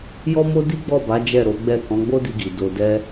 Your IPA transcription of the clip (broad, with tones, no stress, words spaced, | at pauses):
jɔ˦mo˦ di˦ɡ͡bɔ˦˨ba˨˦ d͡ʒɛ˦˨ɾo˨˦ ɡ͡bɛ˦˨ kɔ̃˨˦ɡ͡bo˦di˧ɡi˨ do˧ dɛ˦